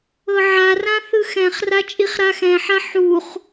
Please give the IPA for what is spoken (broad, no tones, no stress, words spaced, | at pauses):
ɤʕarã θɯxɛ̃χra t͡ʃʼiχɾaxɛ̃ħa ħuχ